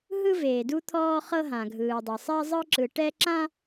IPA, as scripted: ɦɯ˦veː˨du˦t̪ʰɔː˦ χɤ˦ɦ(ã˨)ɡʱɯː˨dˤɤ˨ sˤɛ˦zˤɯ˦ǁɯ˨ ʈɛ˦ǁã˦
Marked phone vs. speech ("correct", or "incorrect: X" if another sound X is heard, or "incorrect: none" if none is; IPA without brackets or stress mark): correct